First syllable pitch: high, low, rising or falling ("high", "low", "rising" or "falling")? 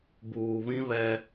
low